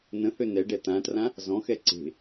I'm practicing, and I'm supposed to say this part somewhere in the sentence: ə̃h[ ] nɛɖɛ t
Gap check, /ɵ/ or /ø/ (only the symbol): ø